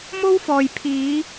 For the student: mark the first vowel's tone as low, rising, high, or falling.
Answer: high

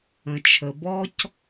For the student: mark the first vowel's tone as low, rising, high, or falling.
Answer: low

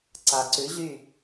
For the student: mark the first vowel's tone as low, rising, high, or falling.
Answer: low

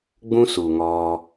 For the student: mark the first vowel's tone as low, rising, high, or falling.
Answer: high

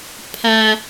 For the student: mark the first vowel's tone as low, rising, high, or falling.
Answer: high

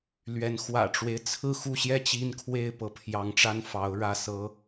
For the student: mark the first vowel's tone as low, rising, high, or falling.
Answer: rising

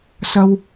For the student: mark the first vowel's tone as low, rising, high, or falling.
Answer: high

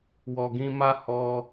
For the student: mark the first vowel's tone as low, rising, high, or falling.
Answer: low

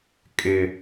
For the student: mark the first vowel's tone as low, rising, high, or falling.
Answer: low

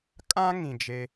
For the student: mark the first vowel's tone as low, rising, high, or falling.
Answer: high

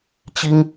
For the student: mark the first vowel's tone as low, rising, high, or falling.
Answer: high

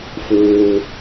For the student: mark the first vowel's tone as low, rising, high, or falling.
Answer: low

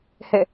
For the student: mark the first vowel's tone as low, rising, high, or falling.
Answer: falling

